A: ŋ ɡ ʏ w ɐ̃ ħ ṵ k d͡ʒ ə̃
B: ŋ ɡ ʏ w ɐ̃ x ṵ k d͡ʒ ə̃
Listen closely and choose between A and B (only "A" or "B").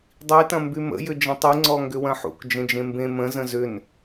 A